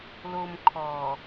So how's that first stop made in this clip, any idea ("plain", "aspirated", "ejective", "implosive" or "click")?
aspirated